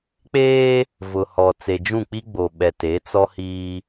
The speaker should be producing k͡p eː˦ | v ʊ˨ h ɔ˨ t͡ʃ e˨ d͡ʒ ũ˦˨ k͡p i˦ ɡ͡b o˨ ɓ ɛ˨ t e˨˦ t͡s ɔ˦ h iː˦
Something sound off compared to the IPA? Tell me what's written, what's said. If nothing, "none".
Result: t͡ʃ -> t͡s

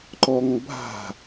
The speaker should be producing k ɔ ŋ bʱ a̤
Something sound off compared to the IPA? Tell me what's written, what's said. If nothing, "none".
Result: k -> ǃ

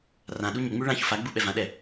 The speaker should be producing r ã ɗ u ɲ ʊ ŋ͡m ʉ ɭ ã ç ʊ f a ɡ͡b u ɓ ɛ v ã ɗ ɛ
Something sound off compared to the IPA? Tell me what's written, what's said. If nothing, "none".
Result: none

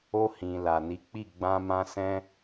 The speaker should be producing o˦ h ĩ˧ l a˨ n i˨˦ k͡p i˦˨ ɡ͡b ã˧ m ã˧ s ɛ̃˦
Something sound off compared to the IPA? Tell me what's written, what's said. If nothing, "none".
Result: none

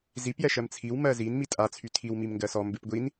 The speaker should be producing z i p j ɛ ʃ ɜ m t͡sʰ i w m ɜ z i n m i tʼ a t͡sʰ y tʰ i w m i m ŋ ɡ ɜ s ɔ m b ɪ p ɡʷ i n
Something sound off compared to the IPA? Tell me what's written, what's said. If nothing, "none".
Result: none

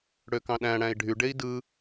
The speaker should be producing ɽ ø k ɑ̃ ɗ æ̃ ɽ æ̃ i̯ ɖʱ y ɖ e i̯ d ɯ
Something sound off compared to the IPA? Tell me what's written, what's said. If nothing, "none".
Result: none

